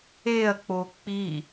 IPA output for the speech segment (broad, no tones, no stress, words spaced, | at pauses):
eɐ̯k͡po k͡pi